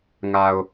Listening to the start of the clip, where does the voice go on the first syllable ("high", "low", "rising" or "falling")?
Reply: low